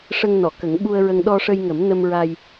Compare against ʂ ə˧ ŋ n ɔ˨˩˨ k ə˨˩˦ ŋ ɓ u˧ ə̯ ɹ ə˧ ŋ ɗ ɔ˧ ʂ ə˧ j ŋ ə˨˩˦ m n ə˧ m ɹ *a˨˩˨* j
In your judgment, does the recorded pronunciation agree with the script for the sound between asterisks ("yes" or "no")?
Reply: no